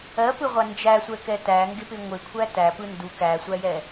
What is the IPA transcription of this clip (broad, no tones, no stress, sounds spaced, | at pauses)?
ɜ p ɯ ʁʷ a n d͡ʒ æ sʷ ɛ k ɛ t æ ŋ ɡ ɪ p ɪ ŋʷ ɪ kʷʰ æ t æ p ɯ n d u k æ sʷ æ j ɛ